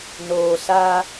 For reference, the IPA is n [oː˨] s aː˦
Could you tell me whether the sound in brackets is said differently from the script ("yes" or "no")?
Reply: no